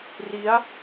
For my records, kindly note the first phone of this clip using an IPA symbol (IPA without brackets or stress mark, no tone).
r